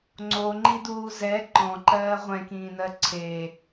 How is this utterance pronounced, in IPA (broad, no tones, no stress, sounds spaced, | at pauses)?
ŋ͡ǀ o ŋ͡ǃ i d uː z ɛ ǃ ɔ̃ ǃ ɜː ʁʷ ɛ̃ k ĩː n ɜ ǀʰ e